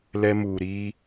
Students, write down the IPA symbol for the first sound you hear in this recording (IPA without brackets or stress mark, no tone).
l